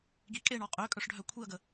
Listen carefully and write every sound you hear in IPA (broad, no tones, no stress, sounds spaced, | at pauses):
ɡ i kʼ e ɳ ɔ qʼ ø kʼ œ ʂ ɖʱ œ kʷʰ i ɐ̯ ɡ ə